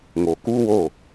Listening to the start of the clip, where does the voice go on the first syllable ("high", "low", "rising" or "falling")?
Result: low